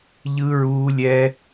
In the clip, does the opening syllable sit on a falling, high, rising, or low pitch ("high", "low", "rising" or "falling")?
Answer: high